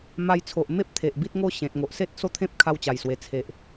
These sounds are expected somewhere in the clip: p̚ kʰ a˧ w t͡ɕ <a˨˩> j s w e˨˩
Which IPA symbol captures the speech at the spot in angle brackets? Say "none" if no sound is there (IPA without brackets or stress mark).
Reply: a˨˩